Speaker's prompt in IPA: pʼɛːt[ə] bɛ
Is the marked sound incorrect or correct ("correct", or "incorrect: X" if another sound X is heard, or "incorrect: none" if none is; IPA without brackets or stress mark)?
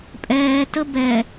correct